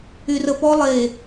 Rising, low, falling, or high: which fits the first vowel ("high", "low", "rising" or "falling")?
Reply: low